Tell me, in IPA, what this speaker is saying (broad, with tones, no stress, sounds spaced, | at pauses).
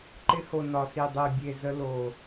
ǃ ɪ˧ h o˨ n ɒ˨ s i˨ dˤ e˨ bʲ e˨ z ə˧ l o˨